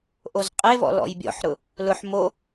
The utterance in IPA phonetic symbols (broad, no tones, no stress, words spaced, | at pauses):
ʔozqʼevɔ̰ lɔ̰jbʲɔ̰ħɾʊ | lʊħ mo